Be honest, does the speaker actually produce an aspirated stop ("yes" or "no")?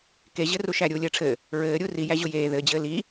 yes